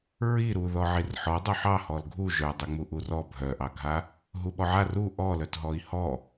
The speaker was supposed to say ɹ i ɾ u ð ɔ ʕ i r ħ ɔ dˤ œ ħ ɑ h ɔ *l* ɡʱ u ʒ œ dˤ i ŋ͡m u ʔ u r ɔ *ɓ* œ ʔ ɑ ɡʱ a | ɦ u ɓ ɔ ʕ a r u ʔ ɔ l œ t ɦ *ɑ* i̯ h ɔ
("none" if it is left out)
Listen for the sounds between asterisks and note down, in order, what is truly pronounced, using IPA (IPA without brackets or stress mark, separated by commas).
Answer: l, bʱ, ɔ